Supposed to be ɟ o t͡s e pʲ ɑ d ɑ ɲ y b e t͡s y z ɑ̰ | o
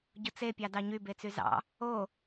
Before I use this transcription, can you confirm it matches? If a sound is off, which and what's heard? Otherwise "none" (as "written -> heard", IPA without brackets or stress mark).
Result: none